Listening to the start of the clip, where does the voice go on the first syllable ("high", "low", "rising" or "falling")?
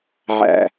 low